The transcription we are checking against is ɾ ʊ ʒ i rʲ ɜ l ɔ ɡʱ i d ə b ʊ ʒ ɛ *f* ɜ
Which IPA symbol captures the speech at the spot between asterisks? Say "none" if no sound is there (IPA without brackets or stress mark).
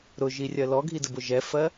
f